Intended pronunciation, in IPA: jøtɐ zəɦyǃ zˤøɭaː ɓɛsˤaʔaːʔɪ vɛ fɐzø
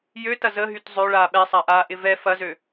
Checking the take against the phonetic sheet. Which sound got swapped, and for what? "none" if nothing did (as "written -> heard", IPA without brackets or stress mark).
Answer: ǃ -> t